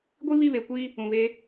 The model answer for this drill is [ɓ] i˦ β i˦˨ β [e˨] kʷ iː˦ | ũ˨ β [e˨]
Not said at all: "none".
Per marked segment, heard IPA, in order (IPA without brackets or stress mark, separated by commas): ɡʷ, e˨, e˦